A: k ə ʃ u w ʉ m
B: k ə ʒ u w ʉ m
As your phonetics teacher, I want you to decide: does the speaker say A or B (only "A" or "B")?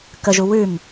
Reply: B